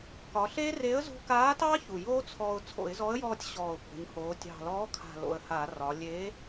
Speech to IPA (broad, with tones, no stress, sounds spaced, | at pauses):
k ɒ˩˧ ɬ e˦˥ r e˨˥ ə̯ z ṳ˧ k aː˨˥ t ɑ˦˥ ç u˨˩ j oː˦˥ t͡sʰ ɔ˧ ʊ̯ t͡sʰ o̰˧˩˧ ɪ̯ z ɔ˨˥ ə̯ j ɔː˧ tʲ ɕ ɔː˨˩ ʊ̯ p o̤˩˧ ɲ h oː˩˧ tʲ ɑ̤˨˩ l ɔː˨˥ kʰ a̤˨˩ l o̰˨˩ ə̯ h aː˧˩˧ r ɒ˩˧ lʲ e˨˥